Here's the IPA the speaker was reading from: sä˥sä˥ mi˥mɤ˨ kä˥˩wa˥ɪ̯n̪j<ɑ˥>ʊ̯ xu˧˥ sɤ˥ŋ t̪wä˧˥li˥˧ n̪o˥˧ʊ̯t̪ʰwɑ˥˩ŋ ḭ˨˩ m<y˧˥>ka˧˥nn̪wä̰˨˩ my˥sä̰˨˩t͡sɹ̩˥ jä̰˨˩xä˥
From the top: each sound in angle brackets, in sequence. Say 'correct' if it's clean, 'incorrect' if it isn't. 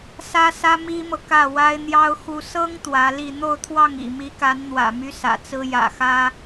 correct, incorrect: i˧˥

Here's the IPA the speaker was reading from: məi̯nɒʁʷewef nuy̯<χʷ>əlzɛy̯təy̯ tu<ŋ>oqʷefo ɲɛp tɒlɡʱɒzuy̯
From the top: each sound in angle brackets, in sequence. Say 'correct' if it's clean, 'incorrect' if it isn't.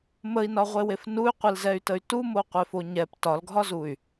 incorrect: qʷ, incorrect: m

